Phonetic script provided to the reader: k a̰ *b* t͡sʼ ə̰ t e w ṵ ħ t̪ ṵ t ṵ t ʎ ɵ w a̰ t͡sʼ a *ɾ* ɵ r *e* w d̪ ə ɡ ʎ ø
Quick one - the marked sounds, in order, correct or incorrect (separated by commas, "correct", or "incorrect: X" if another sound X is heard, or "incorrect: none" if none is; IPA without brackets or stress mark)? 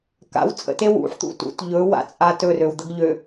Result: incorrect: w, incorrect: t, incorrect: ø